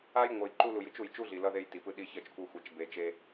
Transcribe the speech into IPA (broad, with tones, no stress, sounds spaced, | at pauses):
a˦ j ŋʷ ʌ˨ j ǃ u˦ l u˨ j ɯ˦ t͡ʃ u˨ j t͡ʃ u˦ ɮ i˨ l ʌ˦ ð e˦ j t i˨ p ɯ˦ ɗ i˦ ç ʌ˦ t͡ʃ kʷ ʌ˦ xʷ ɛ˨ t͡ʃ b e˨ t͡ʃ e˦